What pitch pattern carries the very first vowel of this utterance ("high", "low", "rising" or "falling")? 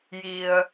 low